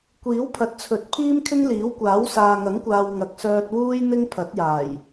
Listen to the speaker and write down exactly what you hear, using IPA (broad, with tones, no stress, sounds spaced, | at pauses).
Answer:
kʷ iː˨˥ w pʰ ɐ˨ t̚ t͡sʰ ɵ˨˥ t̚ pʰ iː˥ m kʰ ɪ˥ ŋ l iː˨˥ w kʷ aː˨˥ w s aː˨ ŋ ɐ˨˥ ŋ kʷ aː˨ w ŋ ɐ˨˥ k̚ s œː˧ t̚ w uː˥ j n̪ ɪ˥ ŋ pʰ ɐ˨˥ t̚ j aː˨˩ j